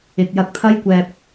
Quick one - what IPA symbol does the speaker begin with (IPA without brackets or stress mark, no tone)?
ɪ